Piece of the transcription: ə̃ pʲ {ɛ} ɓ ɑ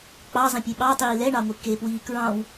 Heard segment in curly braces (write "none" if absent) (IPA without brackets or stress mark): e